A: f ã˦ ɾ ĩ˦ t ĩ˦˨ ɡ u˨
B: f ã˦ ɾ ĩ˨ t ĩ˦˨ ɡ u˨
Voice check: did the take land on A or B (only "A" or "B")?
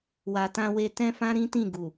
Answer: A